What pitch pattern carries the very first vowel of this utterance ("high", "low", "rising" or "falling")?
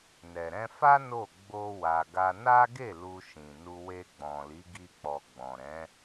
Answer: low